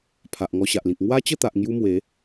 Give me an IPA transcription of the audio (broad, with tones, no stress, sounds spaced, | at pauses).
pʰ a˨ ʔ ŋ ɔ˧ ɕ a˨ ʔ l ĩ˨ k̚ ŋ w a˦ t͡ɕ ə˥˧ t̪ a˨ ʔ ŋ j u˦ m w e˨˦